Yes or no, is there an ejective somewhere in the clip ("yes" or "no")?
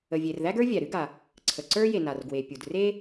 no